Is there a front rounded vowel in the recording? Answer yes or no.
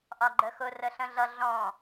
no